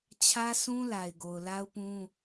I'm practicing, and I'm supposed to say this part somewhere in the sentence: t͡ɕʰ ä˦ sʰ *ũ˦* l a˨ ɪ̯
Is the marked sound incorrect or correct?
correct